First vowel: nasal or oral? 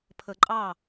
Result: oral